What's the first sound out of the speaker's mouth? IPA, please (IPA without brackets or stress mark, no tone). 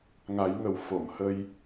ŋ